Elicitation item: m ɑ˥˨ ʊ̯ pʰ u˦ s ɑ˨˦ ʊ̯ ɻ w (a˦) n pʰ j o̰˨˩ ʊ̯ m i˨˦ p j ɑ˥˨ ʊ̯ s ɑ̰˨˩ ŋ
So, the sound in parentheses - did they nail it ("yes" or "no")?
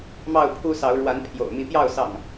no